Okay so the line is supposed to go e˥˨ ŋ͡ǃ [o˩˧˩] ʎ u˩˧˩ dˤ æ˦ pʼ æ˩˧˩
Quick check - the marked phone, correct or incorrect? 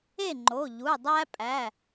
correct